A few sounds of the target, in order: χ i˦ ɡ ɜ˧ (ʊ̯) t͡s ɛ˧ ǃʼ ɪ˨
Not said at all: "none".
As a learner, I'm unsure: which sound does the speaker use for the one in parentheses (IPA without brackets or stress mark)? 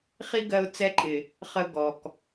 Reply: ʊ̯